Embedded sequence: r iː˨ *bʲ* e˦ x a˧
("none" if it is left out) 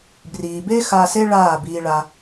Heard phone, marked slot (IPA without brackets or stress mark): b